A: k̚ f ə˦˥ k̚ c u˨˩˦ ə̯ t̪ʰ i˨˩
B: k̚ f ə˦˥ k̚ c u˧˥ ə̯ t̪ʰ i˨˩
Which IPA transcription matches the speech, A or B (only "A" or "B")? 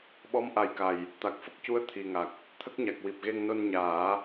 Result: B